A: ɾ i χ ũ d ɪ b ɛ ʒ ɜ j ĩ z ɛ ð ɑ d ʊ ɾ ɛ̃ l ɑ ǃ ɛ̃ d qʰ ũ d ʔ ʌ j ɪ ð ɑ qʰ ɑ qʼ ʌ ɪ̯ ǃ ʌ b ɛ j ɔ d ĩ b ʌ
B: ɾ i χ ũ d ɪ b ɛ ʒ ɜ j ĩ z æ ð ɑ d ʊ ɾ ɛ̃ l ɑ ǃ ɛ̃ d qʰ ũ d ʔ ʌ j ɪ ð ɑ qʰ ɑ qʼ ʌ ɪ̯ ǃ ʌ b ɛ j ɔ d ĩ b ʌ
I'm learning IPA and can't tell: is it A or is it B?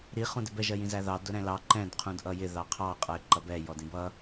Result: B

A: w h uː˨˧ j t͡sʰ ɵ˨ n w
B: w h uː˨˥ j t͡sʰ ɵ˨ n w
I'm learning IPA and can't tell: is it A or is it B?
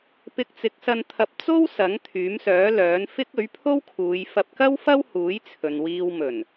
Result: B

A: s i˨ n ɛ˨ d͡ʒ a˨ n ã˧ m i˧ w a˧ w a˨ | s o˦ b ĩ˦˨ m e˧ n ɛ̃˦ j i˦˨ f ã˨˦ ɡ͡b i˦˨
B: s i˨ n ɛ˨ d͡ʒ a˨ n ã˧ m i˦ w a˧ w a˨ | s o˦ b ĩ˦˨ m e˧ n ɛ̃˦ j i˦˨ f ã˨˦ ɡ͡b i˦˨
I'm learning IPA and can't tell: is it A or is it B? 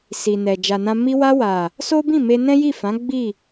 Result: A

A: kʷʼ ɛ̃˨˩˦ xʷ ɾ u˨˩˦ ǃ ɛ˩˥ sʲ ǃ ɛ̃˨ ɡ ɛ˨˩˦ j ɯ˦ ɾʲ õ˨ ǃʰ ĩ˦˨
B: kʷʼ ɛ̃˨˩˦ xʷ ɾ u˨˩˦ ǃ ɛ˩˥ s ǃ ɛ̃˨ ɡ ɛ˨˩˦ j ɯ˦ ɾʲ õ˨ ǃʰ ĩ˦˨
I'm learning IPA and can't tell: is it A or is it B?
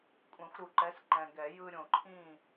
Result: B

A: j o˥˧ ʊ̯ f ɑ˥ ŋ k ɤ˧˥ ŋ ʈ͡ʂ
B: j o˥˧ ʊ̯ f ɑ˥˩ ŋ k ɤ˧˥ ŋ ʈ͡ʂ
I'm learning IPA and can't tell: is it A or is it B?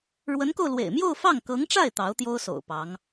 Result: B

